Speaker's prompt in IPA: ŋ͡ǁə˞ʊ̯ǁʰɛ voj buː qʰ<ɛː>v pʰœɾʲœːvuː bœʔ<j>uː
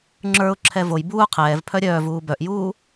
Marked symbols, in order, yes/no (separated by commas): yes, yes